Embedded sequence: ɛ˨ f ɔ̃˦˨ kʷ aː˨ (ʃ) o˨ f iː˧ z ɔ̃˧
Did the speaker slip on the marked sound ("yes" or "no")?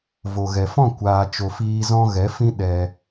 yes